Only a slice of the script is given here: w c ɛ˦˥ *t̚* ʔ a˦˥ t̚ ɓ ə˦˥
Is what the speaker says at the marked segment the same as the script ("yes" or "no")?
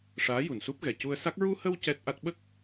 yes